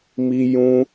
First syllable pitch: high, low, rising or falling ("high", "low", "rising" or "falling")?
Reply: high